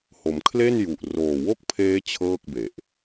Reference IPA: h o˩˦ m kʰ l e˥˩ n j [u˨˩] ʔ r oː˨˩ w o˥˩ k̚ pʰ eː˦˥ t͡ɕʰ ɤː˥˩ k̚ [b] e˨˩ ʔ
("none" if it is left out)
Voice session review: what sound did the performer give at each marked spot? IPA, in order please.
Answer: u˨˩, b

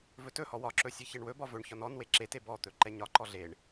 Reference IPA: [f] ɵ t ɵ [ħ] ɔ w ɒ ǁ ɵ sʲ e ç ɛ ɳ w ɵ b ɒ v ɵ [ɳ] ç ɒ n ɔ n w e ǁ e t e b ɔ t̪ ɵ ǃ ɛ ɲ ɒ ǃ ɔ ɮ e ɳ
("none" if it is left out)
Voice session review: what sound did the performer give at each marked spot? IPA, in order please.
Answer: v, h, ɳ

